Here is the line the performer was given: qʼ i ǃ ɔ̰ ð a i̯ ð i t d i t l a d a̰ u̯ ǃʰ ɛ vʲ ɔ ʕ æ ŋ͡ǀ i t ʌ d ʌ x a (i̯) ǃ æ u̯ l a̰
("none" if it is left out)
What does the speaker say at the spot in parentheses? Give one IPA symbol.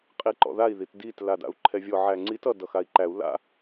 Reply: i̯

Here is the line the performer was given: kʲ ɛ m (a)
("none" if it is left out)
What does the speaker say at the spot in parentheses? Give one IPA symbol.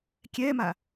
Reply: a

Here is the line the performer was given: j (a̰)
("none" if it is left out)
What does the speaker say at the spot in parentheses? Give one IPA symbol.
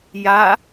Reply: a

